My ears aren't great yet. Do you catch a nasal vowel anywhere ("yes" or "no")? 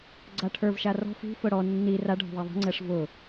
no